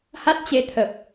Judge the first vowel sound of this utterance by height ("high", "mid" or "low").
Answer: low